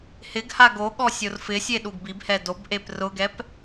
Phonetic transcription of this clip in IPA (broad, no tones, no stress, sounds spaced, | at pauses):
h ɪ ɡ h a ɡ o ɠ ɔ sʲ o r f ɪ sʲ e ɗ u ɡ b i b h ɛ d o b ʔ e p r ʊ ɡ ɛ p